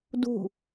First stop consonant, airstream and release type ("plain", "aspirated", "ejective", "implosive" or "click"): plain